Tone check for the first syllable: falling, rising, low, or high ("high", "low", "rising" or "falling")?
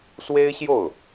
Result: high